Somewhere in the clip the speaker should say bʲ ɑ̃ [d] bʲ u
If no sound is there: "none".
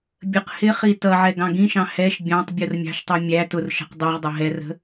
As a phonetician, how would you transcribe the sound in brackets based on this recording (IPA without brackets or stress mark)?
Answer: tˤ